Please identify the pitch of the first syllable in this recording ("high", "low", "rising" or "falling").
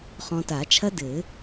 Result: low